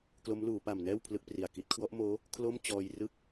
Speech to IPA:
k l o˦˥ m l uː˩˦ p a˨˩ m n ɛː˥˩ w pʰ l ɯ˦˥ k̚ p r i˨˩ a̯ k i˦˥ t̚ kʰ w ɔ˦˥ ʔ m oː˦˥ | kʰ l o˥˩ m t͡ɕ ɔː˧ j r ɯ˥˩ k̚

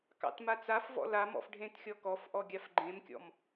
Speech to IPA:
k ɑ̰ t m a t͡s a f v ɔ̰ l a m ɔ̰ f ɖʱ ẽ t xʲ ɔ k ɔ f ʔ ɔ ɡʲ a f ɡ͡ǃ ẽ m kʲ ɔ̰ m

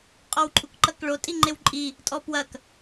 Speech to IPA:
qʼ ɔ w ǃʼ u k ǃ ɐ k ɭ o tʼ i ŋ͡ǃ e w ǃʼ i | tʼ ɔ p w ɐ k

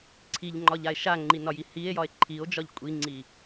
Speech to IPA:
ǀʰ i ʎ ŋ͡ǃ ɒ ʎ a e̯ ʃ a ŋ͡ǃ i n ɒ j i h i e̯ j ɒ e̯ ǃʰ i o̯ d͡ʒ ɒ ʎ kʷʼ i ŋ͡ǀ i

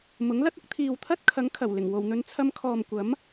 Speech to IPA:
m ʊ˨˥ ŋ l ɐ˥ t̚ ʊ˨˥ k̚ t̪ʰ iː˨ w t̪ʰ ɐ˥ t̚ kʰ ɐ˨˥ ŋ kʰ ɐ˨˩ w l ɪ˨˩ ŋ w o˨˩ w n̪ ɵ˧ n t͡sʰ ɐ˧ m kʰ ɔː˨ m kʷ ɐ˨˥ m

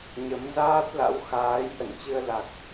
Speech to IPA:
ɲ ə˨˦ m z aː˦˥ t̚ l a̰˧˥ w x aː˨˦ j ʔ ə̰˧˨ n t͡ɕ ɨ˧ ə̯ l a˨˩ k̚

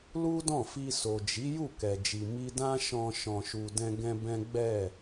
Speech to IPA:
l u˦ d ɔ̃˦˨ f i˧ s o˨ d͡ʒ i˨˦ j u˦˨ k ɛ˨ d͡ʒ i˨ m i˧ d ã˦ ʃ ɔ̃˧ ʃ ɔ̃˨ ʃ u˨ d ɛ̃˧ ɡ ɛ̃˦ b ɛ̃˦ ɡ͡b ɛ˦˨

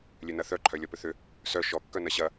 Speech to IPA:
lʲ ø n ɐ θ œ ǃʰ œ lʲ ɔ p ʏ θ ʏ | s œ ʃ ɔ kː œ n ɐ ɕ ɐ

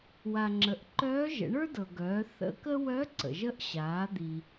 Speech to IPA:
w a˩ ŋ͡ǁ ə˩˧ ʔ ǃ œː˧˥ ʒ ə̰˩˧ ɳ ə˞˥ d ɤ˩ ɡ œː˩˧ θ ə̰˧˥ k ə˥ w œ˧˥ ǀ ə̰˩ ʒ ə˧˥ ʔ ɕ aː˩˧ d̪ i˩

